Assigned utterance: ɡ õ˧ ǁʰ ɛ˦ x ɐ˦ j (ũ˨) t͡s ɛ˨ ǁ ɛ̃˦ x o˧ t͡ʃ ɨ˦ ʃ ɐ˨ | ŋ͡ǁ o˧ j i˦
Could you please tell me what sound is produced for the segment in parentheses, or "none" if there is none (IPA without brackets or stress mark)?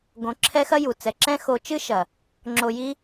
u˨